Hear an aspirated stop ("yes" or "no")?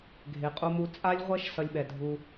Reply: no